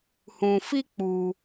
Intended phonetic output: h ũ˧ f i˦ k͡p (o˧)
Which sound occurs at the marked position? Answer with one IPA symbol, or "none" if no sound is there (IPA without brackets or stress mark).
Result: u˧